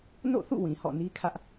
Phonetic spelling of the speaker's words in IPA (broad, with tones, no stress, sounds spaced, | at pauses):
n o̰˦˨ θ ṵ˦˨ w ĩ˨ h ɔ̰˦˨ n i˦ kʰ ä˦ ʔ